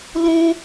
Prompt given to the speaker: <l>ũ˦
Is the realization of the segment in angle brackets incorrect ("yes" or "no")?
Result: no